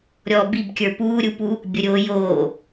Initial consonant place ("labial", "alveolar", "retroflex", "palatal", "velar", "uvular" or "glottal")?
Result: alveolar